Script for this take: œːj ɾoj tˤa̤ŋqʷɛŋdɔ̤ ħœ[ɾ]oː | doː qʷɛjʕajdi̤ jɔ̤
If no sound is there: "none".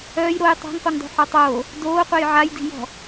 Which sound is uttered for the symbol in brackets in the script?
tˤ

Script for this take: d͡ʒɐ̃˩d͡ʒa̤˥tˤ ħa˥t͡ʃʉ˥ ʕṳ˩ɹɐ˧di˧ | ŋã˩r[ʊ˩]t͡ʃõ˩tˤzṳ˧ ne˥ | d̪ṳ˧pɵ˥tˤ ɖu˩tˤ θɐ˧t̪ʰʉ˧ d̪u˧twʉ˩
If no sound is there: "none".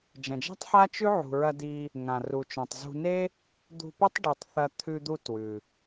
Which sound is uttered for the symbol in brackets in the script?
u˩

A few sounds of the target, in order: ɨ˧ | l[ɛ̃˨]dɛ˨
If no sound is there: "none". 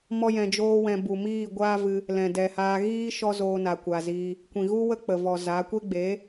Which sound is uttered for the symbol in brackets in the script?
ɛ̃˨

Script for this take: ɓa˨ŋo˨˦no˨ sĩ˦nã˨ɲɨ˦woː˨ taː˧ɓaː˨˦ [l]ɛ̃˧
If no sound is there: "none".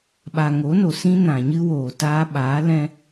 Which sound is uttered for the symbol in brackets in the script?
l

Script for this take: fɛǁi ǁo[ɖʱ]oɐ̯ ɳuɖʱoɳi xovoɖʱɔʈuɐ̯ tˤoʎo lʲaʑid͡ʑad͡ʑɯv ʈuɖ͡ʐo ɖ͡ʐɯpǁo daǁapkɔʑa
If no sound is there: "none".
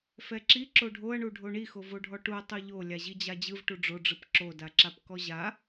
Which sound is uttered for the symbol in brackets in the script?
ɖʱ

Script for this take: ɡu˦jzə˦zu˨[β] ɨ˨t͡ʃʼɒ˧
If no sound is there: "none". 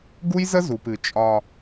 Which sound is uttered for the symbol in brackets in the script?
p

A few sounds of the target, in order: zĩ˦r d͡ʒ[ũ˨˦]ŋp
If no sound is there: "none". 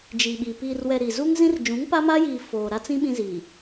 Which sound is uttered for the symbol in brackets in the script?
ũ˨˦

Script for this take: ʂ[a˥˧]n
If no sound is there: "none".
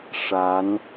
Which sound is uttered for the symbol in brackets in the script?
a˧˥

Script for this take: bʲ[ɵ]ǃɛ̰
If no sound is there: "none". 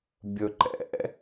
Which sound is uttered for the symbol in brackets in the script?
ɵ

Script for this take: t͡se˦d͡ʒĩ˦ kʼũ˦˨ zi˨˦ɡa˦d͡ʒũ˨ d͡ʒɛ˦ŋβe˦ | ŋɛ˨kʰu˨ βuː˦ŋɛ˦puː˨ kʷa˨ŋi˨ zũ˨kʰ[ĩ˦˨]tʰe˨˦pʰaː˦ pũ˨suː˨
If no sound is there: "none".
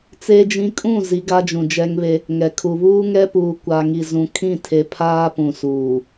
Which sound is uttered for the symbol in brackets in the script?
ĩ˦˨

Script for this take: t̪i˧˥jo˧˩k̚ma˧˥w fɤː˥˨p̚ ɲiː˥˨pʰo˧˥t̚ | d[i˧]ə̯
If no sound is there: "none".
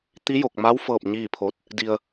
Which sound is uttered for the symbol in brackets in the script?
i˧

